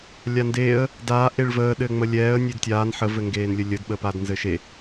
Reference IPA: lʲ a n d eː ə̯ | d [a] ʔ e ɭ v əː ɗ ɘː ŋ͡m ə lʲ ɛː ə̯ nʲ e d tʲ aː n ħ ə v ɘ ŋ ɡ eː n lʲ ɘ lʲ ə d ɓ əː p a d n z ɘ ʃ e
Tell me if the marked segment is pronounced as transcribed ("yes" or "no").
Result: no